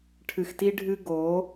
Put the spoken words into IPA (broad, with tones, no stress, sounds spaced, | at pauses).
ʈʰ ɨ˨ x t i˦ ɖʱ ɨ˦ ɡ o˨˦